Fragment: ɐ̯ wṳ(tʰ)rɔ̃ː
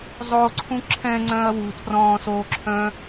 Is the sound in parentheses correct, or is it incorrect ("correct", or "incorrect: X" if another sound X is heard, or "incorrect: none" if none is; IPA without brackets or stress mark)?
correct